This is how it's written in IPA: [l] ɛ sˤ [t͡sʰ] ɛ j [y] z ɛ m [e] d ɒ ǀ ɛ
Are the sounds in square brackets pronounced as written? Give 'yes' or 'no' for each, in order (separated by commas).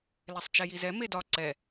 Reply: yes, no, no, yes